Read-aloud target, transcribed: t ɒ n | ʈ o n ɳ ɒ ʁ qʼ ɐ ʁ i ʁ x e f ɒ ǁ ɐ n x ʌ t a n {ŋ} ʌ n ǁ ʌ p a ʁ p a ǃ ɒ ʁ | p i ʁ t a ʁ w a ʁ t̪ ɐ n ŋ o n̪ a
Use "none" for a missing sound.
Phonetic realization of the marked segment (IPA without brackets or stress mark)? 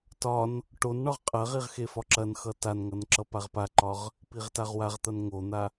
ŋ